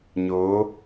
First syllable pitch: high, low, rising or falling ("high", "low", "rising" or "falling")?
rising